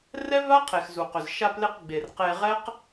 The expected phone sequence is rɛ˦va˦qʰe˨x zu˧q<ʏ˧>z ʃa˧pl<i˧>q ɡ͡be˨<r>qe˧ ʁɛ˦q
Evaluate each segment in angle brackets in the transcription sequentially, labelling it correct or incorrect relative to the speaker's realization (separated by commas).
correct, incorrect, correct